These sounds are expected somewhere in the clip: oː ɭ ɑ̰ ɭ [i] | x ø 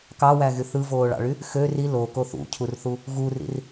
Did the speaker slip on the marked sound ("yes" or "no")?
yes